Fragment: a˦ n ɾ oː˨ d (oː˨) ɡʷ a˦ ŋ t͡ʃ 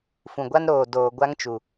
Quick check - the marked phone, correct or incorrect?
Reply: correct